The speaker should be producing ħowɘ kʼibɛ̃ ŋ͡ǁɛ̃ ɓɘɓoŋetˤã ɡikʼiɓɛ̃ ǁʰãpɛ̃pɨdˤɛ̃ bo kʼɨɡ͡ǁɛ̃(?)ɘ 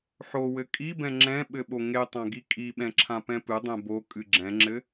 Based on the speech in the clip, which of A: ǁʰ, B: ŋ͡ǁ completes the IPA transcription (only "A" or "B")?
B